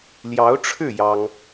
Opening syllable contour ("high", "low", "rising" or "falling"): rising